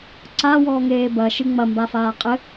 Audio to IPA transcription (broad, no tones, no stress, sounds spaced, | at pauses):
ǀ a w ɔː ŋ eː b ɐ ʃ ɨ ŋ͡m ɐ m b a f aː qʼ ɘ